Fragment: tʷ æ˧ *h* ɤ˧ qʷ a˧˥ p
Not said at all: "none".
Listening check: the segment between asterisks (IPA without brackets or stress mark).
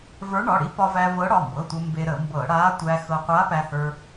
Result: x